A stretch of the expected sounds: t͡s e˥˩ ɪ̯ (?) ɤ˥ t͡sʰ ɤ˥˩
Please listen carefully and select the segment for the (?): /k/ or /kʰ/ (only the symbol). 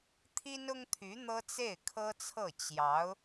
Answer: kʰ